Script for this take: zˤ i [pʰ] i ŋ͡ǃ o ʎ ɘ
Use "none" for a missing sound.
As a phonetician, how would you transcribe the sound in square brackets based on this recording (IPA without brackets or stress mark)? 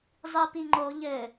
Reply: p